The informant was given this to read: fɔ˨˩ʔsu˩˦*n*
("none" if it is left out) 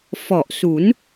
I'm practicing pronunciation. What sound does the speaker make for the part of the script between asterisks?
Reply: n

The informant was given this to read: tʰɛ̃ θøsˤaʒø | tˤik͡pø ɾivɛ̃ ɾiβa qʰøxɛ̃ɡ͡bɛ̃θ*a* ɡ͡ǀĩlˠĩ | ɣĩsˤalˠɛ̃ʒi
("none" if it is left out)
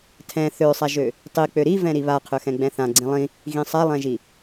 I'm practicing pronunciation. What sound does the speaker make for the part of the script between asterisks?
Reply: ã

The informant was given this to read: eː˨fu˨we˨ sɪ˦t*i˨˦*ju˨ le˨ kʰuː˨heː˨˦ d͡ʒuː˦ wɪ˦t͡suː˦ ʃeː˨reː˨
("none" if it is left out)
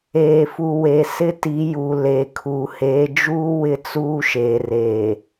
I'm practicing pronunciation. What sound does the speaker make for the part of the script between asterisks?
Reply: i˨˦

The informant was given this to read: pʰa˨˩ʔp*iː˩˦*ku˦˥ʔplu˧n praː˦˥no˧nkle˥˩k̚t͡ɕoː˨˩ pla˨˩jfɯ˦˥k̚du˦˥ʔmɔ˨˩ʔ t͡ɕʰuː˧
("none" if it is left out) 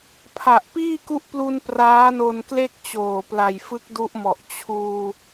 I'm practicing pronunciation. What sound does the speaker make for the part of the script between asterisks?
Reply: iː˥˩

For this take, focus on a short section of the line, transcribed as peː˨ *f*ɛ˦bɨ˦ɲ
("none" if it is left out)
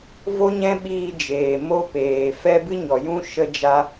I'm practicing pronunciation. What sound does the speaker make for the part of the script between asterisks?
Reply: f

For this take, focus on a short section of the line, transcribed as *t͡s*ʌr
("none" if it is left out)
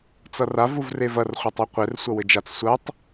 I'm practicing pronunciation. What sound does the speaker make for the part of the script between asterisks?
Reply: t͡s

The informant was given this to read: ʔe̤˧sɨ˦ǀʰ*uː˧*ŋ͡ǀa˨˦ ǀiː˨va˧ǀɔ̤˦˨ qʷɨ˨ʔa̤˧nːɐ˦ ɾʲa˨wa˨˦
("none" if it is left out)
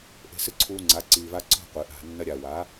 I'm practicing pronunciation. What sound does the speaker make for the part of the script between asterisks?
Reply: uː˧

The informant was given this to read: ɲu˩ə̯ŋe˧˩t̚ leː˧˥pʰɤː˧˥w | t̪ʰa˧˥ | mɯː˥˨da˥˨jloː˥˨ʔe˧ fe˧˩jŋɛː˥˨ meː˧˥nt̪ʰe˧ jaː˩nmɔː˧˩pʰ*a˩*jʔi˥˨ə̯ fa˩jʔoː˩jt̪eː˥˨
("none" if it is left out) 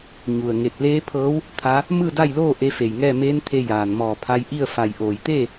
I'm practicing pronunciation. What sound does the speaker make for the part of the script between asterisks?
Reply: a˧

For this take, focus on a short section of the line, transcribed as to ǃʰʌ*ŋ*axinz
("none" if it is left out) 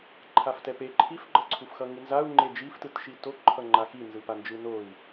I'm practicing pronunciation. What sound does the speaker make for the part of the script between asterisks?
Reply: ŋ͡ǃ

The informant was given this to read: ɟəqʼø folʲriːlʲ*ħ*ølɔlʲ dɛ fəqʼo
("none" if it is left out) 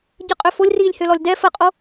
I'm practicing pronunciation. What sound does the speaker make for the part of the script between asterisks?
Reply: h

